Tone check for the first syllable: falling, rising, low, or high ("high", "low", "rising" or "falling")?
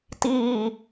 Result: falling